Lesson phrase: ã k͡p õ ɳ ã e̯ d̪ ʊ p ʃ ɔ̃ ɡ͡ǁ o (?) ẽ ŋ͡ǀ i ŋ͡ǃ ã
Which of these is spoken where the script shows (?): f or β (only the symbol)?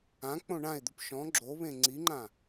β